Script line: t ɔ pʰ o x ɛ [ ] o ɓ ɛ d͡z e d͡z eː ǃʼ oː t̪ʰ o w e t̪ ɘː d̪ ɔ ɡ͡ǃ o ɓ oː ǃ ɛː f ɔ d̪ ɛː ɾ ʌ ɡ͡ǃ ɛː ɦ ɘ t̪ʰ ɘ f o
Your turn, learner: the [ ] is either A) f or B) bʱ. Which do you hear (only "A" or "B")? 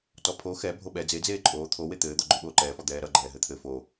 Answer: B